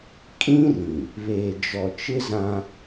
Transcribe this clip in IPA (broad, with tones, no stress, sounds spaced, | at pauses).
kʼ ĩ˦ r ĩ˨ | β eː˨ d͡ʒ ɔ˨ t͡ʃ ɪ˦ z ã˦